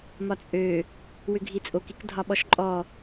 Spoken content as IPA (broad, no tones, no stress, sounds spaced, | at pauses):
m ɒ t͡sʼ ø | w ʏ ɡʱ i t͡sʼ o k i k dʱ ɒ ɓ ɔ ʃ ǃʼ ɔ